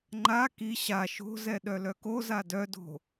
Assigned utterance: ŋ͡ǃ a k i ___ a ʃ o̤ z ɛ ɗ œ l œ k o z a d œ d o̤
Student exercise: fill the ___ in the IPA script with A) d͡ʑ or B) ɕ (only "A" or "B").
B